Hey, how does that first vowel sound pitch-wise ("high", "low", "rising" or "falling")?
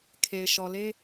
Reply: low